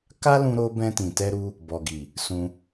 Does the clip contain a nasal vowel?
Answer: yes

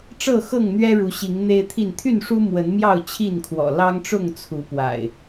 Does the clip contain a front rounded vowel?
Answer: yes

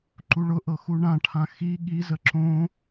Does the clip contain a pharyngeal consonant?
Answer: no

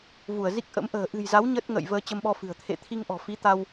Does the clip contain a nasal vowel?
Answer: no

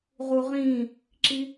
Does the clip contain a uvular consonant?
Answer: yes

